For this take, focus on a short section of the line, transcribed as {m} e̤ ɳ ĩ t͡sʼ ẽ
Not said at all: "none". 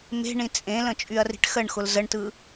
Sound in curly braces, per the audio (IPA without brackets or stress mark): m